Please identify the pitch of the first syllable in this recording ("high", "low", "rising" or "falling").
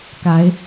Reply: rising